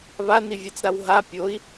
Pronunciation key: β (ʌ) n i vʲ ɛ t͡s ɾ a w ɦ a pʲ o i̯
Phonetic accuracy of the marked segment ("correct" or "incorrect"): incorrect